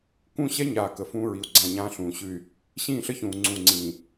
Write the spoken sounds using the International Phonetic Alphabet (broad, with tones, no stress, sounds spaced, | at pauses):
k ũ˦˨ ɕ ɛ˦ ɲ aː˨ k ə˨ f ũː˦ ɹ i˨ u̯ ɡ͡ǀ ã˦˨ ɲ ãː˦ ɬ ũː˨ ɕ ʉ˦˨ y̯ | ɕ ĩː˦˨ ɬ ə˦ ç ũː˨ ŋ͡ǀ ũ˨ ŋ͡ǀ ĩː˨